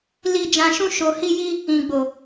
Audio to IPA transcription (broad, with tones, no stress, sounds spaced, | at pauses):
l i˧ d͡ʒ ã˧ ʃ ũ˦ ʃ o˧ h i˦ j i˦ | ĩ˨ ɡ͡b o˨